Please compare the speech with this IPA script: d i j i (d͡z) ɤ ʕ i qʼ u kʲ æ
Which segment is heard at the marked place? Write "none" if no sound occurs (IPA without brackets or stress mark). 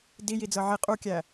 d͡z